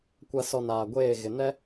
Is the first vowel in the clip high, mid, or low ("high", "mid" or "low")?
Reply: low